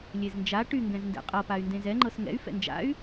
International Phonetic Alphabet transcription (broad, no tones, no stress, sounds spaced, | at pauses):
lʲ e z n d͡ʒ a ʈ y ŋ ɡ ɛ̃ z n d ɛ̰ qʼ ɤ p a y̯ n d ẽ z ɛ ŋ͡ǃ ɤ s ŋ ɛ̰ y̯ f ɛ̰ n d͡ʒ a̰ y̯